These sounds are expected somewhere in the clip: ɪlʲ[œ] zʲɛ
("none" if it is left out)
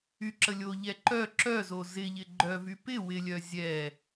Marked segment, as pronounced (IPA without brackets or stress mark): œ